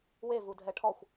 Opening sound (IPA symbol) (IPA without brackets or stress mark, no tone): w